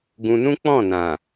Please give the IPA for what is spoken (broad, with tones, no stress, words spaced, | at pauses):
ɡũ˧nũ˦ k͡pɔ̃˦˨nã˨